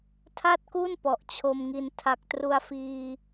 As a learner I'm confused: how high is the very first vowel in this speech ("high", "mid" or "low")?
low